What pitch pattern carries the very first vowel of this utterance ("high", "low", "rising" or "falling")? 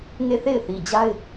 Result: falling